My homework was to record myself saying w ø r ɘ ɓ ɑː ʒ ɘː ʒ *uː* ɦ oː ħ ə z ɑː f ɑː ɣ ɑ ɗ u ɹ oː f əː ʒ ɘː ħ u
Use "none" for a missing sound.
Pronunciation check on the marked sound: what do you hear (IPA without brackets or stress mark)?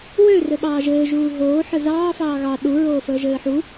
uː